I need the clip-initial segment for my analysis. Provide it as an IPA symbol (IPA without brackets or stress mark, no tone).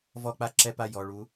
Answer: v